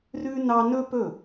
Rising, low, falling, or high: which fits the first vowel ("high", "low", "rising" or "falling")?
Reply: high